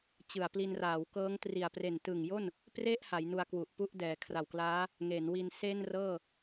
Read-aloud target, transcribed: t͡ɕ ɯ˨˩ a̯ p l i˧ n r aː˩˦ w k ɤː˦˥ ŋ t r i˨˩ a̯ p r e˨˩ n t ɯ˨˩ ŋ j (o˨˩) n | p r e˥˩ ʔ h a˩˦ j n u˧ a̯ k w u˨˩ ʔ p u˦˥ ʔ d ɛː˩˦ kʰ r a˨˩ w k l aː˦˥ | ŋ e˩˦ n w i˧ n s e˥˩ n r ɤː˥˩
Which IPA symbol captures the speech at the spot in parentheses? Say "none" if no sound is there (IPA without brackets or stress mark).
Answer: o˥˩